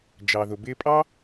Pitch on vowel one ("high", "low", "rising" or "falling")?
low